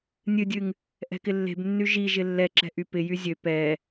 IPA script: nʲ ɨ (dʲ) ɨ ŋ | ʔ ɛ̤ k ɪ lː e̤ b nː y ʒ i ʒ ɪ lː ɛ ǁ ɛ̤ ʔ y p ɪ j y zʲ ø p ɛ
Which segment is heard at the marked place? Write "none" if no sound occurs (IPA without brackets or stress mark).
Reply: dʲ